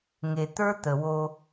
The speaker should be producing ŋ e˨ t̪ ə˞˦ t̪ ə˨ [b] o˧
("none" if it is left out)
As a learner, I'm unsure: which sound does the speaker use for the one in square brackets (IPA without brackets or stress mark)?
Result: w